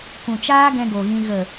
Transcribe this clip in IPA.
k ũ˨ t͡ʃ aː˦ ɡ ɛ̃˧ ɡ o˨ ɣ ĩ˧ ɣ ə˨

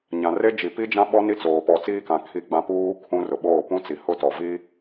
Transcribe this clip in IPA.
ɲ ã˨ r e˦ d͡ʒ i˨ p i˦ d͡ʒ ã˦ ɓ ɔ˦ n i˦ t͡s oː˨ p ɔ˨ t͡s iː˦ k ã˨ kʰ i˦ ɡ͡b ã˦ p uː˦ kʰ ũ˦ r ʊ˨ ɓ oː˦˨ p ũ˦ t͡s i˨ h ʊ˦ t ɔ˨ v i˦

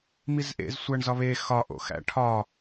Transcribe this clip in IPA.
m i z ʔ ḛ z sʷ æ ɳ z ɒ β e x ɒ ʔ o̰ x æ̰ ʈʰ ɒ

